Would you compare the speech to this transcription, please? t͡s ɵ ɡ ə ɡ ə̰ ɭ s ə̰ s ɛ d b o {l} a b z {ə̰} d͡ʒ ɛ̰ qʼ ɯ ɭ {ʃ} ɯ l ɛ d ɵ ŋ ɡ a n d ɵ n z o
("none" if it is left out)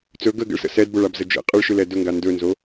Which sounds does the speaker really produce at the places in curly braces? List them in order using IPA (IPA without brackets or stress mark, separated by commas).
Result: ɭ, ə, ʃ